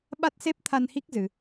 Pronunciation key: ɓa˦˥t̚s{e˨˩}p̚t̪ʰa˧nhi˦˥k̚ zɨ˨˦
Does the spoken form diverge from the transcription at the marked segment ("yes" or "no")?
yes